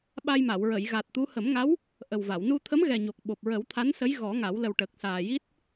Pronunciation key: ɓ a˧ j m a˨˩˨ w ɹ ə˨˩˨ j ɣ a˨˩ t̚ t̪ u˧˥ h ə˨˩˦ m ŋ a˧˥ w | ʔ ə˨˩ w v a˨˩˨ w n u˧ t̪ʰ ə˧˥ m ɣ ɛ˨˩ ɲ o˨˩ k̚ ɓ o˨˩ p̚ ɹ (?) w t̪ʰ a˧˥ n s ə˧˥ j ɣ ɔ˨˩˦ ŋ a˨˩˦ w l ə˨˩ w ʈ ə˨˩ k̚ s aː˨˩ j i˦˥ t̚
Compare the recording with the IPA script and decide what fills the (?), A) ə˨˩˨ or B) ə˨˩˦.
B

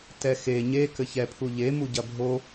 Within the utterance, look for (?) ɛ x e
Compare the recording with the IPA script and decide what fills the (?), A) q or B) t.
B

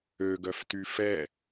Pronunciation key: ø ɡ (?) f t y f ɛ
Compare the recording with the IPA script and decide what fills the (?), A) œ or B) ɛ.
A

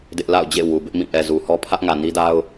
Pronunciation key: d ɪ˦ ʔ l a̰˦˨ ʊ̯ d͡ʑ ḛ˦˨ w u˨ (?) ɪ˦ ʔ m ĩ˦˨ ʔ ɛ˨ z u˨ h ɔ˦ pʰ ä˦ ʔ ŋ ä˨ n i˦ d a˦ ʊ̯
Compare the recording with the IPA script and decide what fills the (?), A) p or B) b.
B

